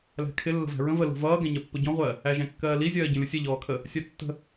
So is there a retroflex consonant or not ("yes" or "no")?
no